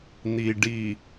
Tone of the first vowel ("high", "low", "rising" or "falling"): low